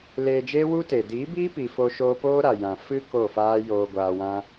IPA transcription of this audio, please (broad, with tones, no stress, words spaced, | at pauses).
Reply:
leː˧d͡ʒeː˦wu˦te˨ diː˨˦biː˦pi˨ fo˧ ʃoː˧poː˦ɾa˨ jã˨ fɨ˦ ko˦˨faː˦joː˧ ɡʷaː˧wã˦